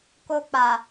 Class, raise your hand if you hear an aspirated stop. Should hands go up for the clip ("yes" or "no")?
no